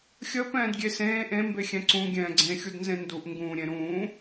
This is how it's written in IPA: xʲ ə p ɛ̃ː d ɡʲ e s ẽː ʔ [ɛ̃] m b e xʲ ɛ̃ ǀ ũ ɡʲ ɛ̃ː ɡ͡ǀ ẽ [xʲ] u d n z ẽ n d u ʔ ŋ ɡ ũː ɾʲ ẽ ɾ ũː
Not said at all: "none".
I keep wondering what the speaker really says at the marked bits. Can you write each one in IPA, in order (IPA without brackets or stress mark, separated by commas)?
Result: ẽ, xʲ